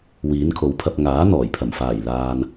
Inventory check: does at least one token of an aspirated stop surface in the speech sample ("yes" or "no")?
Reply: yes